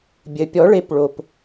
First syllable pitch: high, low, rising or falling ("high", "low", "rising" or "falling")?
low